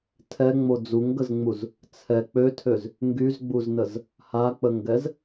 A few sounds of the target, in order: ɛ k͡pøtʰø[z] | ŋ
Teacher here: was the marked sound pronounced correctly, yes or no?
yes